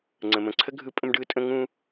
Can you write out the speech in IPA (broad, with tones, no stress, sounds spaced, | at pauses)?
ŋ͡ǀ ə̃˩ m ə̃˩ ǀʰ ə˥ ɡʱ ɯ˥ pʼ ə̃˥ m ɖ ɯ˥ tʼ ə̃˥ ŋ ũ˥